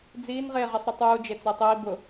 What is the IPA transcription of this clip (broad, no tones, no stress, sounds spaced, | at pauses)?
d͡z iː n ʁ eː ʁ i sˤ ɾ ʊ tˤ uː d͡ʒ e t͡s e tˤ iː b ʊ